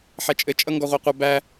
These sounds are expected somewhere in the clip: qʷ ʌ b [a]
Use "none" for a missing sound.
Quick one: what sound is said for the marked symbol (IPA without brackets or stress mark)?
æ